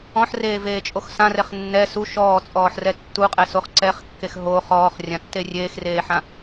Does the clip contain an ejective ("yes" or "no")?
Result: yes